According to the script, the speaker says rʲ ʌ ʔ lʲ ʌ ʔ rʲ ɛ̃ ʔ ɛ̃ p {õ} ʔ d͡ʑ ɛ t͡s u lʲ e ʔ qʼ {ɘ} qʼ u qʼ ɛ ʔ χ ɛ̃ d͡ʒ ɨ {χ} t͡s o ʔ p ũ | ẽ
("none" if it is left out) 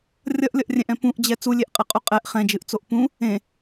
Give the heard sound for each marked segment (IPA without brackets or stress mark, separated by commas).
ũ, ɘ, ʔ